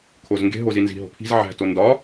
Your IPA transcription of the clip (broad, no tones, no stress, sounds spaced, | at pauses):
kʰ o z ŋ ɡ e̤ ɦ o z i n z i̤ ɦ o̤ pʰ i̤ z ʕ æ̤ t o n d ɒ